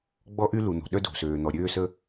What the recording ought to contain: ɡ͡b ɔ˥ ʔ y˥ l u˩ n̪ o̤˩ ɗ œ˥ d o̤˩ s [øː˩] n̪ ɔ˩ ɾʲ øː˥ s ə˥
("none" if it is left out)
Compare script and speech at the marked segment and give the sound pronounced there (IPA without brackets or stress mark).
øː˩